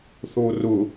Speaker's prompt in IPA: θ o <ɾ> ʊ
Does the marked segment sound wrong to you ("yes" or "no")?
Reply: yes